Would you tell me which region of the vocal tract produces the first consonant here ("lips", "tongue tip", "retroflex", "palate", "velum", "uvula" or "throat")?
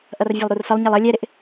throat